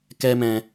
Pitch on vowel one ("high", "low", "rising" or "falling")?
high